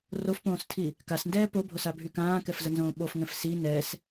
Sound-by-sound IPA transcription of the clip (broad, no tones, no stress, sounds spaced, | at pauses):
r o f p õː s tʰ i | k a s n d ɛː p o bʱ o s a bʱ y k ãː k ɛ f z ə n z õː ɓ o f ŋ ɛ̃ f s i n ɛ s